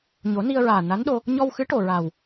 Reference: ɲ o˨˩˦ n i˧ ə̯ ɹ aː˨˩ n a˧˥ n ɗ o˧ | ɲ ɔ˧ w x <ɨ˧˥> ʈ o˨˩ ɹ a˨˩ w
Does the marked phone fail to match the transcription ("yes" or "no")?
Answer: no